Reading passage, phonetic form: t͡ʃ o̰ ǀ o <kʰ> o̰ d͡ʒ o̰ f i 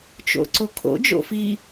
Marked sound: correct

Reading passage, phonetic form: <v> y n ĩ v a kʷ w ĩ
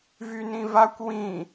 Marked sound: correct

